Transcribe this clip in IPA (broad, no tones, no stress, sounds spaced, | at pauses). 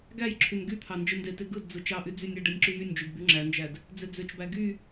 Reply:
ɡ æ j ǁʰ y n ɡ y t̪ʰ ɑ n d͡ʒ ɯ n d e t e ɡ ɯ d d͡z ɯ t͡ʃ ɑ ʔ y d͡z y nʲ æ ɖ e nʲ ǁ y j y nʲ d͡ʒ y d b y ŋ͡ǁ æ n d͡ʒ æ d | d͡z e d͡z ø t͡ʃ b æ ɡ y